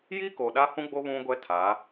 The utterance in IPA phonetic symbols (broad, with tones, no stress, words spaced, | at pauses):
ji˦ ko˨ɗa˦hũ˦ɡ͡bo˦ βũ˦ɡʷɛ˦tʰa˨˦